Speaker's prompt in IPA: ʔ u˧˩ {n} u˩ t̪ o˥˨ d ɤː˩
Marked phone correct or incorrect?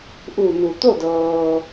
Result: correct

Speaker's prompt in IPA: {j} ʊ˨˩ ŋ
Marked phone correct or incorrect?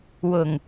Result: incorrect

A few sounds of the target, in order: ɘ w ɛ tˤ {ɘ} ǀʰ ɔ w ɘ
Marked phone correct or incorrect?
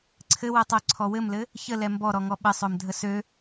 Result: incorrect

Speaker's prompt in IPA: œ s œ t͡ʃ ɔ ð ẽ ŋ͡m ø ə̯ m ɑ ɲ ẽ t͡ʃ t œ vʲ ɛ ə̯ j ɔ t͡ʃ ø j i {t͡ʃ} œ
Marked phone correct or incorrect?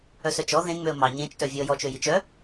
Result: correct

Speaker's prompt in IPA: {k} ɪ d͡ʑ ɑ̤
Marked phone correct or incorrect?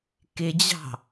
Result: correct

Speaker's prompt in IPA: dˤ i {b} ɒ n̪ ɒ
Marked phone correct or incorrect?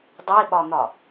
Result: incorrect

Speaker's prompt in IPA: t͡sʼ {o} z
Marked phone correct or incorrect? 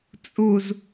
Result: incorrect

